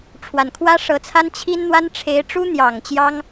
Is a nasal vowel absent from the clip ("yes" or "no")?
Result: yes